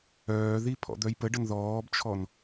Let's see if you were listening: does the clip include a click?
no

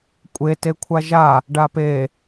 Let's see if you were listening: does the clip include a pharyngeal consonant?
no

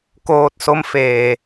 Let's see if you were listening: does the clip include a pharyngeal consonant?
no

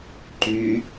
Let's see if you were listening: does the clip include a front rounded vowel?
yes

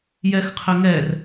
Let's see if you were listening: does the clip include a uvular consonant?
yes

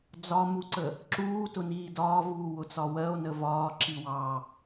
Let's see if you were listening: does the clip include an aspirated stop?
no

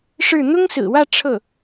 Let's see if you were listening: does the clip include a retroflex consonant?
yes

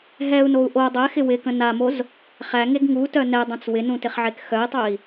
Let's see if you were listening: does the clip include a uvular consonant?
yes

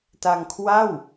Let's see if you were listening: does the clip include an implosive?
no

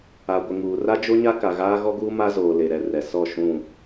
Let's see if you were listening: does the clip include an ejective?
no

